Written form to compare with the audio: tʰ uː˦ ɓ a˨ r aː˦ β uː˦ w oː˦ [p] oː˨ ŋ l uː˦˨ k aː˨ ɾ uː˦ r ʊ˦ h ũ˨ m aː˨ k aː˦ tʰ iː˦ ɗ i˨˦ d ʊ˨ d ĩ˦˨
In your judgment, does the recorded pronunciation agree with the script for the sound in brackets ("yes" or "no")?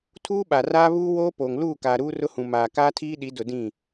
yes